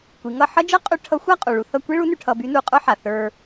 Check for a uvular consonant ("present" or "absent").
present